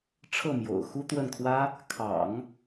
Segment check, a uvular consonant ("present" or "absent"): absent